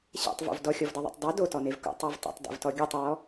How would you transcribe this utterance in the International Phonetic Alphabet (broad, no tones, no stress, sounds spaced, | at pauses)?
ɕ ḛ tˤ v o̰ v d ɔ xʲ ɔ v d ɤ ðˤ ɛ̰ tˤ dˤ ɤ d o t ɔ n e v k o̰ tˤ ɔ v tˤ o̰ tˤ d ḛ v t ɔ ɡʲ ɔ tˤ ɹ ɔ